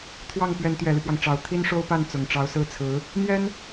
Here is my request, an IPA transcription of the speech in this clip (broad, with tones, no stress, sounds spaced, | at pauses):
t̪ʰ w ɑ˥˩ ŋ p ɥ ɛ˧˥ n t̪ ɥ ɛ˨˩ l y˦ p w ɑ˩ ŋ ʈ͡ʂ ɑ˨˩ ʊ̯ t̪ʰ i˥ n ʂ o˥ ʊ̯ p a˥˩ n t͡s ʊ˨˩ ŋ ʈ͡ʂ ɑ˧˥ ʊ̯ s ɹ̩˥˩ t͡sʰ ɹ̩˧˥ | n̪ j ɛ˥ n